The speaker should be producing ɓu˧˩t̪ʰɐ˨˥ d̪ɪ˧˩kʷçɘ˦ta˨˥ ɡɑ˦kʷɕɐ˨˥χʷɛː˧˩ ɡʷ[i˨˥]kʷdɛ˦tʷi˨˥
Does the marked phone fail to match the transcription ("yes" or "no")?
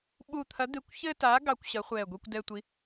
yes